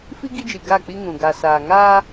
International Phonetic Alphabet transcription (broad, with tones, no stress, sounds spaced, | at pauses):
f i˦ ɡ i˦ d͡ʒ i˨ ɡ a˦˨ k͡p i˦ ŋ ũ˨ ɡ a˨ s aː˨ ŋ a˦